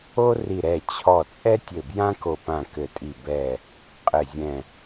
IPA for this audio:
o˥ri˧˩ ɾɛ˧˩ t͡ɕʰɔ˧˩ t͡sʼɛ˥tʲɘ˧˩ bjã˥ko˧˩pã˧˩ kɘ˧˩tʼi˧˩ bɛ˧˩ | qʼɘ˧˩zʲɛ̃˧˩

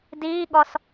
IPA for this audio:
diːɠɔs

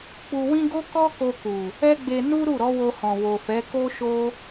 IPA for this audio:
k͡pu˧wĩ˦ ɡo˦kɔ˦ko˧ku˨ | ɛ˦ɡ͡be˧ nu˦ ɾu˦˨ɾɔ˨˦wo˧hɔ̃˨ wo˨fɛ˨˦ ko˦ʃo˦

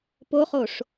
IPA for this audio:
poχoʂ

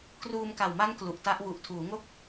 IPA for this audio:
kruː˧mka˨˩wma˦˥n klu˨˩ʔta˦˥ʔ wu˨˩ʔtʰuː˩˦ŋo˥˩k̚

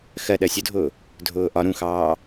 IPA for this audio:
xɜ ɗɜsʲʊdʱʊː | dʱʊːʔɒ ɾũxɑː

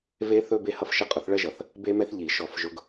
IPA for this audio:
ve˥θɵ˥ be˥hʌ˥fʃə˥ qʼʊ˨˦θɭɜ˥ʒʌ˧˩˧θ | be˥mɛ˥θʎi˧˩˧ ʃɔ˧˩˧fʒʊ˨˦ɡ

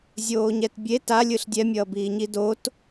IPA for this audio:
zʲoːɲɛtbʲe talʲɯɬ dʲɛmʲʌːbiːɲi dot

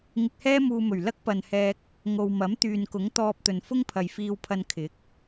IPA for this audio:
ŋɪ˧k̚hɛː˥muː˧mɵ˨˩ɥ lɐ˥k̚pɐ˨nhɛː˧k̚ | ŋo˨wmɐ˨˥m t̪yː˨nkʊ˨˥ŋ t̪ɔː˧p̚t̪ɵ˨n fʊ˥ŋpʰɐ˨jfiː˧wpʰɐ˧n kʰɪ˨˥k̚

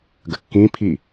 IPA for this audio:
ɡəkːĩpʰi

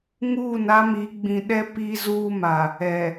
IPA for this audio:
ŋuː˦˨n a˦mi˨˦ ɡ͡bĩ˨ɗɛ˦ pi˦zuː˦ma˨ | ɛ˨

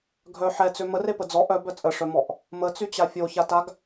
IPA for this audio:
ɡʱœ ħɛt͡sø mərepə d͡zɔ ʔœbœ t͡sʼəʂœmɔʔ | mət͡syt͡ɕa fʲoçataɡ

